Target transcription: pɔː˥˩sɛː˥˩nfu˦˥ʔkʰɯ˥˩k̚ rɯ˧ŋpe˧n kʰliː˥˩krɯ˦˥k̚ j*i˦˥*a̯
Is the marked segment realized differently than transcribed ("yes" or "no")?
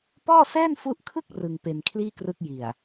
yes